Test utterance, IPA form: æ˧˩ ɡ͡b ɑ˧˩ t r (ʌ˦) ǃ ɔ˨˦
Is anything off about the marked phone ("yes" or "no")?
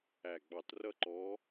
no